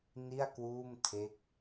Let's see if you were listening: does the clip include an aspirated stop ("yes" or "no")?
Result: yes